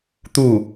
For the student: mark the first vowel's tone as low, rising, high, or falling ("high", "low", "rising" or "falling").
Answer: falling